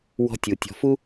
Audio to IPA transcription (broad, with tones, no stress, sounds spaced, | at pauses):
w ɔ̤˧ tʲ u˨ tʲ ɔ̤˧ f u˦